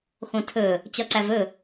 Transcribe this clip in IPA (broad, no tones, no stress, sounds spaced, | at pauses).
x õ tʰ ɵ | t͡ɕ ɒ ǀ æ v ɵ